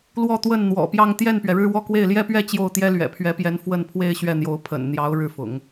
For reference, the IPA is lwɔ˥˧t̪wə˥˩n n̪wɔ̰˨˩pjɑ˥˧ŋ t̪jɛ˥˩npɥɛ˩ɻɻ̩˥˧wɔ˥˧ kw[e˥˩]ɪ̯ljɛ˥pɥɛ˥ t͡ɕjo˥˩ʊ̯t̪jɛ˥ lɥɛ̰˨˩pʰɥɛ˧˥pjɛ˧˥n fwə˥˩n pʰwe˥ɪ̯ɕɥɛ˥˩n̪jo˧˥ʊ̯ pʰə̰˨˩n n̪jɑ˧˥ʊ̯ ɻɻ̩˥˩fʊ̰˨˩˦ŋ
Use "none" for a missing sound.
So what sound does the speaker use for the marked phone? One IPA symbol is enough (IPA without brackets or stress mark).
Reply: e˥˩